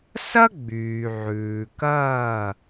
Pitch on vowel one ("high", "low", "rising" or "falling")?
high